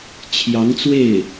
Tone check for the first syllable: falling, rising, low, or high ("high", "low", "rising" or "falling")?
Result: rising